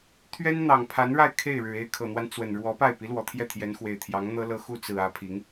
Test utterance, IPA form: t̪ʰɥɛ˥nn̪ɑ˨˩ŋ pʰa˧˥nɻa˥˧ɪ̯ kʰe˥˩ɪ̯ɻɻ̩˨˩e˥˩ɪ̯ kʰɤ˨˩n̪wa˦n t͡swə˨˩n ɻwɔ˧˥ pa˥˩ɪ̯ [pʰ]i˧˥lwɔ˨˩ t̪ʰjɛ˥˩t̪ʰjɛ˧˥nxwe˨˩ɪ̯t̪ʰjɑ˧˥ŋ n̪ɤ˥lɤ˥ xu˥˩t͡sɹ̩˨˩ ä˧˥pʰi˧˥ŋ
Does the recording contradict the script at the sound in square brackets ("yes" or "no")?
yes